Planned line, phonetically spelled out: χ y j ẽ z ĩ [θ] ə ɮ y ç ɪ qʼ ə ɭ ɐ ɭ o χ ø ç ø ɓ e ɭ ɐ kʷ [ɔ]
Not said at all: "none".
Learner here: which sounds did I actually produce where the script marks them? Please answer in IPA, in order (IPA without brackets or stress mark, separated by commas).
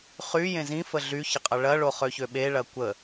f, ə